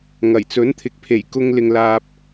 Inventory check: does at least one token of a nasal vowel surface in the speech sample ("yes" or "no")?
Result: no